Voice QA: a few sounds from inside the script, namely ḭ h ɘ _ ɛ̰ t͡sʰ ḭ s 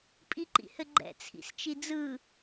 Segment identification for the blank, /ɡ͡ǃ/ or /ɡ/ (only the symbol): ɡ͡ǃ